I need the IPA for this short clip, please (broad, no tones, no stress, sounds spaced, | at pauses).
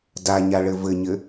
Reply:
d a ɲ a ɭ ɘ v ɘ ɲ ɘ